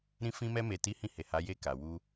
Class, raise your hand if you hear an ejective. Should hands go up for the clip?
no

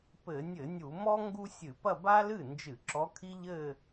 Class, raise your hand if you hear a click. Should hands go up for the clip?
yes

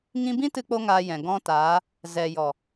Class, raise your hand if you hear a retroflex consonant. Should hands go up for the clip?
no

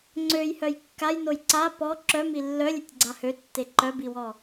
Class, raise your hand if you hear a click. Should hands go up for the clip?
yes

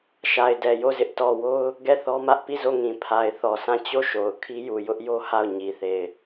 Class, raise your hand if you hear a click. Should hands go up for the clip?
no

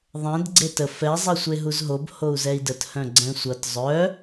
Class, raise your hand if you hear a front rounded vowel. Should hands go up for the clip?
yes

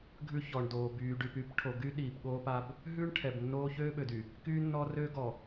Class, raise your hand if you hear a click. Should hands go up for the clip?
no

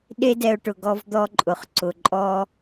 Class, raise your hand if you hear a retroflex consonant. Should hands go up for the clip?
yes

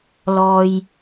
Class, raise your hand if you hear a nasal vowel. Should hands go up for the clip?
no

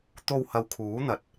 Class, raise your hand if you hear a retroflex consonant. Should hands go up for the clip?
no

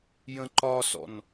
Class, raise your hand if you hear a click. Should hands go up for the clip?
yes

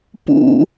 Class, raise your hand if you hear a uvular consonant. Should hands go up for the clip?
no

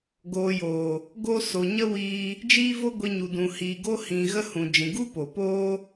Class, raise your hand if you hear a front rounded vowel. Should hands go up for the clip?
no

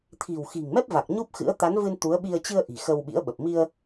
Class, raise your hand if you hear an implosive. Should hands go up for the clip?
yes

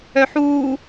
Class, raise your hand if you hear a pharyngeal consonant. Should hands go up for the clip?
yes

